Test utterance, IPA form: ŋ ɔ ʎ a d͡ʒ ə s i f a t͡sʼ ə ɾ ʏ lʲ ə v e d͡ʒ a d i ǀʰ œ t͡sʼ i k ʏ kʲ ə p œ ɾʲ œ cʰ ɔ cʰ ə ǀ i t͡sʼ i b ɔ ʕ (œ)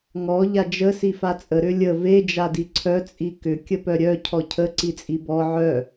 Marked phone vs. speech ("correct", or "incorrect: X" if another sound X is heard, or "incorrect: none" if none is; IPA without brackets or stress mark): correct